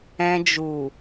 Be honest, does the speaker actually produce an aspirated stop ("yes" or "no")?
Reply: no